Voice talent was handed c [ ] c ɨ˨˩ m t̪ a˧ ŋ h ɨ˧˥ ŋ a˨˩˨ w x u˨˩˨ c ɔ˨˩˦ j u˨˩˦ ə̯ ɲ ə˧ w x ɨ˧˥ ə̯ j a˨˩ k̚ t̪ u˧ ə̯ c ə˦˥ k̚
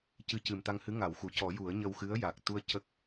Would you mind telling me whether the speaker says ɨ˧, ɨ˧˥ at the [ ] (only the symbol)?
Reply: ɨ˧˥